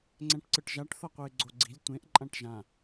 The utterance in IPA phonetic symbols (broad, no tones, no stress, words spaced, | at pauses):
ŋ͡ǀɛ̃ʈǀɯʈʒaʈ θʌqʷɯɪ̯ɡ͡ǀoɡ͡ǀi̤lʲ tʷẽʔ ǃʼãʈʒã